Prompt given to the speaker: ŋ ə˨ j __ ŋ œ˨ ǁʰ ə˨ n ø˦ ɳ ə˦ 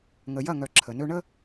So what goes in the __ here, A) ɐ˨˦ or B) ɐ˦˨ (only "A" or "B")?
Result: B